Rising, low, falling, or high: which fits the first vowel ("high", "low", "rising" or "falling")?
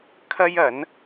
high